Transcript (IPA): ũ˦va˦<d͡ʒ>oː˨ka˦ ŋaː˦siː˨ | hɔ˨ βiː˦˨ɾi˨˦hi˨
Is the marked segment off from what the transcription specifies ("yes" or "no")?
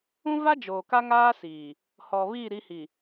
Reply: no